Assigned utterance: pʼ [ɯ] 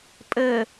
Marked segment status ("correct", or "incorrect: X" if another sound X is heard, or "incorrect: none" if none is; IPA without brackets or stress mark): incorrect: ə